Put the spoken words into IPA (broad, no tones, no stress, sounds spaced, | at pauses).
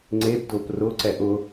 ŋ͡ǀ e b d ʊ p r ʊ ǀ ɛ ʔ ʊ